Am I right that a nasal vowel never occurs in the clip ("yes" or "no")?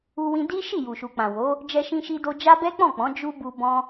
no